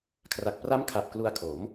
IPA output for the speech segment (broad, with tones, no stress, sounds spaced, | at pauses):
kʰ r a˨˩ k̚ p r a˦˥ m kʰ a˨˩ p̚ k l u˧ a̯ kʰ o˩˦ m